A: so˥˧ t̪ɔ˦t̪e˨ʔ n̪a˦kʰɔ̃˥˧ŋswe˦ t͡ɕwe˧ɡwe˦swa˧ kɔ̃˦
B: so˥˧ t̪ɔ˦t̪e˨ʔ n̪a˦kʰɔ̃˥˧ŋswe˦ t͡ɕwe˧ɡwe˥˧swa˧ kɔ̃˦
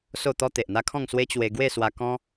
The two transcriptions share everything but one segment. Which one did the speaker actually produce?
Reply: B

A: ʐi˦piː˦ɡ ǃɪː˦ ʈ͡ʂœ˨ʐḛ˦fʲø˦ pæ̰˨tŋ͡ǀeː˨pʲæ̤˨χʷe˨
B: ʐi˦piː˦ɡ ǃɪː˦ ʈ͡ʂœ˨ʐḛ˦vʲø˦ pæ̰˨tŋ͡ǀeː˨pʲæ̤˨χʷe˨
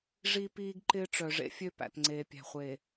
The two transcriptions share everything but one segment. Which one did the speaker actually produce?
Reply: A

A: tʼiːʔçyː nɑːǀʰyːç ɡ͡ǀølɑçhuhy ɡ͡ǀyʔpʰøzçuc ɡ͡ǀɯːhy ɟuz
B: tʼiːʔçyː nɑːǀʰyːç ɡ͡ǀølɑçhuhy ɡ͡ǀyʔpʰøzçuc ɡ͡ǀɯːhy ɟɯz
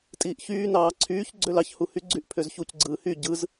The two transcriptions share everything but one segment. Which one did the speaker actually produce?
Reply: B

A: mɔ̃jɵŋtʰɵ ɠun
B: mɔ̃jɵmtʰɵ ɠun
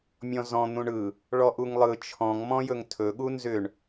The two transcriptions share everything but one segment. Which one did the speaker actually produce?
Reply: A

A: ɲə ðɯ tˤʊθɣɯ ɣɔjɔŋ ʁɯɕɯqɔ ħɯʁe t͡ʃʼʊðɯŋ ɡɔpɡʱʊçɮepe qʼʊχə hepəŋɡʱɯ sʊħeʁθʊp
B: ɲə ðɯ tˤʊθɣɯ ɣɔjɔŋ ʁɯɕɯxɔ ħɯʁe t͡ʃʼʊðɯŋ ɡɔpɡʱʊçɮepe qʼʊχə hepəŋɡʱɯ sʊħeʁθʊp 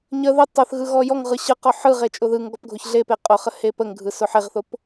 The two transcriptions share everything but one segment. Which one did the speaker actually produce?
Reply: A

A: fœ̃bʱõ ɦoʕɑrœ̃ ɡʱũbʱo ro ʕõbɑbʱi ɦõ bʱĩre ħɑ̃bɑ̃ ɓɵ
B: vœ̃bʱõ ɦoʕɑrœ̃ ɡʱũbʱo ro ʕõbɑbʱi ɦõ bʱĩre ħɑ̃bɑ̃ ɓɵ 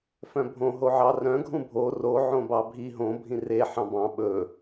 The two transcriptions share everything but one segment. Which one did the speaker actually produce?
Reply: A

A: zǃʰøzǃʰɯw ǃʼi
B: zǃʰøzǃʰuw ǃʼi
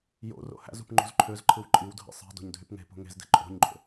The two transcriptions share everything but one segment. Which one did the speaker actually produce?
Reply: A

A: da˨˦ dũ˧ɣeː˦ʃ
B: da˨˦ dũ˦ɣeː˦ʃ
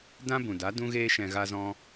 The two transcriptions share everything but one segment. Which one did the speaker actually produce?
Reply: B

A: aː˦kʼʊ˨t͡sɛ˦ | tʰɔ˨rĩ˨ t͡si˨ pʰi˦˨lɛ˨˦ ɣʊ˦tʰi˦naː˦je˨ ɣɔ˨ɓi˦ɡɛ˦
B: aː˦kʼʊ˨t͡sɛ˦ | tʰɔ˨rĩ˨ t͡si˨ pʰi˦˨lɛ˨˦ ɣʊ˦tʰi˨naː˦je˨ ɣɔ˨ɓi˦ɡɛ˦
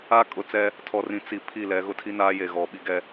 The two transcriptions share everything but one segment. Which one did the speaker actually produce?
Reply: A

